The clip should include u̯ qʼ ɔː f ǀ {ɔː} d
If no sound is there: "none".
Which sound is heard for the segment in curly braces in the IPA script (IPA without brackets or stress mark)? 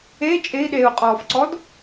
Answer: ɔ